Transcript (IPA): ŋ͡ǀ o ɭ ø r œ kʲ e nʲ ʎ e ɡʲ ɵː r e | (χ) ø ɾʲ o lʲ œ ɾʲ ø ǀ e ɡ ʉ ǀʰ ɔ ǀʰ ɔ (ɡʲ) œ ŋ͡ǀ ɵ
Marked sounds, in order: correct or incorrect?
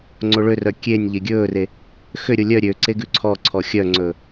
incorrect: x, incorrect: xʲ

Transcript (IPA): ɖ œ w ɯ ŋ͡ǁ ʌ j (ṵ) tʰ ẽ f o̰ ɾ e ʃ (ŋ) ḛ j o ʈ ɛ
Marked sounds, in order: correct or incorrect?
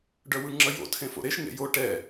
incorrect: o̰, correct

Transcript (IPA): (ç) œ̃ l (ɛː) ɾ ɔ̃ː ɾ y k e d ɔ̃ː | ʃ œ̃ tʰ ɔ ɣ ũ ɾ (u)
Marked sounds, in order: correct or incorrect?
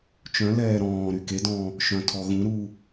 incorrect: t͡ʃ, correct, incorrect: uː

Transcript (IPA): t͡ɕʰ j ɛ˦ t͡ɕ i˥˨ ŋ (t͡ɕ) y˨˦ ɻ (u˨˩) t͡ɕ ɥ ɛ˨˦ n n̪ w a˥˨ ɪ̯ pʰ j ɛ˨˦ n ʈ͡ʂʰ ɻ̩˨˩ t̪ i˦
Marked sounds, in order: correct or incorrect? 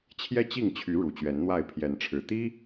incorrect: t͡ɕʰ, correct

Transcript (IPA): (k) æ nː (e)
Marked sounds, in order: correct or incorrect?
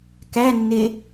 correct, correct

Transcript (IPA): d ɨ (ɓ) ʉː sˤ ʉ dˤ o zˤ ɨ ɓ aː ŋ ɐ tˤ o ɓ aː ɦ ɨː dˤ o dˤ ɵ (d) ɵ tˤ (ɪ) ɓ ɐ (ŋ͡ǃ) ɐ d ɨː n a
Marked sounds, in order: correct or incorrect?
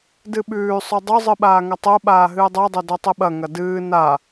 correct, correct, incorrect: ɨ, incorrect: ŋ

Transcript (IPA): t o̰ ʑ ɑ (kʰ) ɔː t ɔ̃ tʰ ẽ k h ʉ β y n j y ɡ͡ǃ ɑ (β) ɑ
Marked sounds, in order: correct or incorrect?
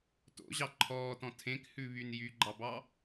incorrect: ǃʰ, incorrect: b

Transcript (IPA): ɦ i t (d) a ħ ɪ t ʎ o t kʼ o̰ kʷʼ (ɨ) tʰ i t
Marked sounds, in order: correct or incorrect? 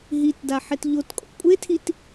correct, incorrect: e

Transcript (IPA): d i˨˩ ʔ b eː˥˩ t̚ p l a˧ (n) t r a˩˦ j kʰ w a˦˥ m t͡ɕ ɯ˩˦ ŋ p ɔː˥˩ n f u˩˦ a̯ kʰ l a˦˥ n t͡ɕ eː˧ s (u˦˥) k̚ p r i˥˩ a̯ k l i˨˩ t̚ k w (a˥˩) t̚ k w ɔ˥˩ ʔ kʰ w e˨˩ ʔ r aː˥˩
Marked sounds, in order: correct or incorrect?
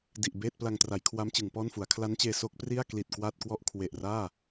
incorrect: ŋ, incorrect: o˦˥, correct

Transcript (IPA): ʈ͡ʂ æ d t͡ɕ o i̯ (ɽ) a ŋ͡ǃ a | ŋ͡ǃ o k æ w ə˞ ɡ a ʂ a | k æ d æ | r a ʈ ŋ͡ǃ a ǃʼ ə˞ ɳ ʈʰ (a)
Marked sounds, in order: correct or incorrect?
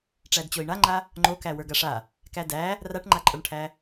incorrect: ɳ, incorrect: æ

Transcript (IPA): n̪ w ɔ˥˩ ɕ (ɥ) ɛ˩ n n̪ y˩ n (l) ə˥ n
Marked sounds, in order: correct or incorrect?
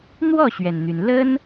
correct, correct

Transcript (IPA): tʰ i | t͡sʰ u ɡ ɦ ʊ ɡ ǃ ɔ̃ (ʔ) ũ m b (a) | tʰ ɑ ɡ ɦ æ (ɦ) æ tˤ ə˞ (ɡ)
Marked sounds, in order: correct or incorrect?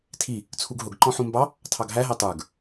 incorrect: ħ, incorrect: ɑ, correct, correct

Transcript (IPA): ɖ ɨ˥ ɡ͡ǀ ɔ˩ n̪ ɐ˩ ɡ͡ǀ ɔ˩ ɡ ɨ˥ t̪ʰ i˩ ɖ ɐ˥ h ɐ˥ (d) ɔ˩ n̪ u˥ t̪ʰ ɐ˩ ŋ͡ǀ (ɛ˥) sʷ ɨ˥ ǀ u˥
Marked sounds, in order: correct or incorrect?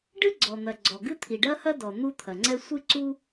correct, correct

